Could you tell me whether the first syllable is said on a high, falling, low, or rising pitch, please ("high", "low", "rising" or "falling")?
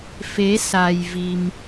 rising